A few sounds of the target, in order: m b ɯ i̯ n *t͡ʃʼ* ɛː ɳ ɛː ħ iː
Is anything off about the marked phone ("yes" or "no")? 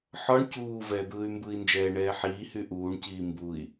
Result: yes